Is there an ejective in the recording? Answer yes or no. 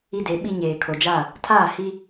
no